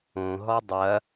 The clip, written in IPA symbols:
õ ɦ ɔ dˤ ɐ

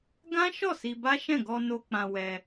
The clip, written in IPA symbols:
ɡ ã˦ ʃ ɔ˦˨ s i˧ b a˦ ʃ ɛ̃˦˨ ɡ ɔ˧ n o˧ k͡p ã˧ w ɛ˧

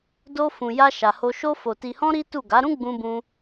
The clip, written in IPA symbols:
d o˦ f ũ˧ j a˦ ʃ a˧ h o˦ ʃ o˦ f o˧ t i˧ h ɔ̃˦ ɾ i˦ t u˦˨ ɡ a˨˦ ɾ ũ˦ ɡ͡b ũ˦ b ũ˦

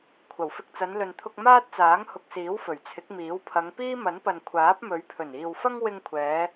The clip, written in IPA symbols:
kʷʰ ɐ˨˩ w f ɪ˧ k̚ t͡s ɐ˨˧ n l ɵ˨ n t̪ʰ ʊ˧ k̚ m aː˥ t̚ t͡s aː˨˥ ŋ h ʊ˨ k̚ s iː˨˥ w f ɵ˨˩ ɥ t͡sʰ ɪ˨˥ k̚ m iː˨˥ w pʰ ɐ˨˧ ŋ p iː˥ m ɐ˨˥ n p ɐ˨ n kʷʰ aː˨˥ p̚ m ɵ˨˥ ɥ pʰ ɵ˨˩ n iː˨ w f ɐ˥ ŋ w ɪ˧ ŋ kʷʰ ɛː˨˧

